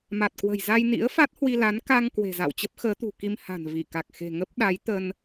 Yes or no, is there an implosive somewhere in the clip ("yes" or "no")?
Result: yes